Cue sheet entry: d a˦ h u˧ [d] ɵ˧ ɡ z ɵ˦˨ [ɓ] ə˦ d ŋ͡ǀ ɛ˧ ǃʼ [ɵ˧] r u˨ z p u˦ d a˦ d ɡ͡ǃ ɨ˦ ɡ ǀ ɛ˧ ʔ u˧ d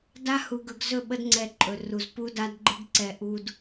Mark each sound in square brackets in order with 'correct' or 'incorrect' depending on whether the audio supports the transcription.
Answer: incorrect: ɡ, correct, incorrect: ɵ˨

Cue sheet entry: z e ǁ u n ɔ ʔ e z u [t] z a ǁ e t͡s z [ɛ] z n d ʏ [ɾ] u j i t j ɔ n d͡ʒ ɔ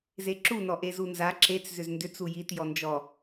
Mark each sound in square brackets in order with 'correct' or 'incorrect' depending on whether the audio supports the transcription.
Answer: incorrect: n, incorrect: ʏ, incorrect: t͡s

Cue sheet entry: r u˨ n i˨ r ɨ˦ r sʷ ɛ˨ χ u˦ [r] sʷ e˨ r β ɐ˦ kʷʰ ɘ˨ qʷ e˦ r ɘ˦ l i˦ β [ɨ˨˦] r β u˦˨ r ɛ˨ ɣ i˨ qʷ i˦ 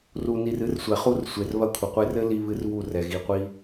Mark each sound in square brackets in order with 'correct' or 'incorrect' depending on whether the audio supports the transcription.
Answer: correct, incorrect: ɨ˦

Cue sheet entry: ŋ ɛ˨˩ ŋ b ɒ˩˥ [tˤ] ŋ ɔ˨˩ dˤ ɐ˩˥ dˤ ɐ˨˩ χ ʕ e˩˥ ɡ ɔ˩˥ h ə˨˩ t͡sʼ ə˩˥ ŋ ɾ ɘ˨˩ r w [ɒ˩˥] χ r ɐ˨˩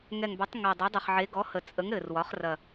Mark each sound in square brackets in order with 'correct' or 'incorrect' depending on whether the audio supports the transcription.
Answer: correct, correct

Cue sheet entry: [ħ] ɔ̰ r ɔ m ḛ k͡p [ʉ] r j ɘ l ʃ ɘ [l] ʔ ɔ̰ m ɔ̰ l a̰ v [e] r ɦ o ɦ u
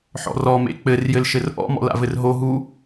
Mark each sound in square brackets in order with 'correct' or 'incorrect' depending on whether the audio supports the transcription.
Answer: correct, incorrect: ɘ, incorrect: r, incorrect: ɘ

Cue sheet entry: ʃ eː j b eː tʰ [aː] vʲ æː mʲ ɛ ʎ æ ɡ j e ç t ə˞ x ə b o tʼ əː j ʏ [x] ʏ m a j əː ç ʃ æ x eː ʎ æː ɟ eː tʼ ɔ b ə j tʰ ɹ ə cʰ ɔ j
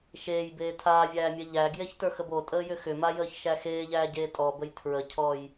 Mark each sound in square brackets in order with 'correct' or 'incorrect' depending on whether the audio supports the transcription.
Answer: correct, correct

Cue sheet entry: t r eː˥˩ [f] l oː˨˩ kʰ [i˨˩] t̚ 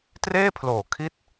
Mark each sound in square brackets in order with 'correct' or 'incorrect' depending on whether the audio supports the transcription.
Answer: incorrect: pʰ, incorrect: i˦˥

